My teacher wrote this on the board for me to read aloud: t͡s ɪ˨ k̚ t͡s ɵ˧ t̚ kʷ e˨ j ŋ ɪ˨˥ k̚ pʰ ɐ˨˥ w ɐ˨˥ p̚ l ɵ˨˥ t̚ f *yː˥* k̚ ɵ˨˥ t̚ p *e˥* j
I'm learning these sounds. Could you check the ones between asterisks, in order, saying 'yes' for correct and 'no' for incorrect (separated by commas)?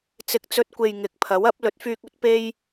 no, yes